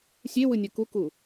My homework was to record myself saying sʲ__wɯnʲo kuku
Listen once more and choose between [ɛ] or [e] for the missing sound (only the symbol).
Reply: e